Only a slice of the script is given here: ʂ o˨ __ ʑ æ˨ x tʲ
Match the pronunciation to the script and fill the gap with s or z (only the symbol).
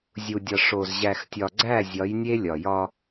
z